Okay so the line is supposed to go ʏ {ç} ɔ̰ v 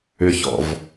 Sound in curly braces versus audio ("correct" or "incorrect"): correct